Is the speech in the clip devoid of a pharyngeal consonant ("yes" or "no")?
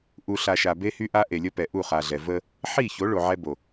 no